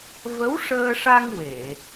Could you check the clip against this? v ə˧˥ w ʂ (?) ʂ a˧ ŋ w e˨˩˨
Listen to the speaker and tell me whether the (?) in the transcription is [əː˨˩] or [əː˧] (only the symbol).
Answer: əː˧